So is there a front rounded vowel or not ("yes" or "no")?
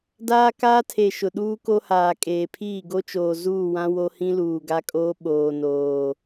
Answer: no